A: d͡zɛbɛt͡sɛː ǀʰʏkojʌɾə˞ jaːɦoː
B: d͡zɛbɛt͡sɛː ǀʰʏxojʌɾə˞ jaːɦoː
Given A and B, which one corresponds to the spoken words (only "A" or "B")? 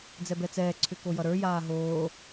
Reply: A